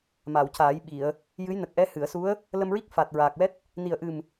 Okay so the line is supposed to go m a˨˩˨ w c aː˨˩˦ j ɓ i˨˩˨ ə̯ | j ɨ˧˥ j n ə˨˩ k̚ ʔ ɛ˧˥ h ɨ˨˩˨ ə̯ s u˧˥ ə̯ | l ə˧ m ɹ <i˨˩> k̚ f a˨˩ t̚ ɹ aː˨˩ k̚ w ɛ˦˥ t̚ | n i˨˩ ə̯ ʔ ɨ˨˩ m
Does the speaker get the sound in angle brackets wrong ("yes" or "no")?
yes